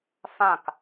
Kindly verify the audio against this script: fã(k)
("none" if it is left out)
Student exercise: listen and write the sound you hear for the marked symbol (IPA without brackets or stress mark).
k